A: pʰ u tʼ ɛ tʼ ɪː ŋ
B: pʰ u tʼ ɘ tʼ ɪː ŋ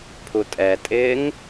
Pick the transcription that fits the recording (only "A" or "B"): A